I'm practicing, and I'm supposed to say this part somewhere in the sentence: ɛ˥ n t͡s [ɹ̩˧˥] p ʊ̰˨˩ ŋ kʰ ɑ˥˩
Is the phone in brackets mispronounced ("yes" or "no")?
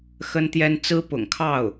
yes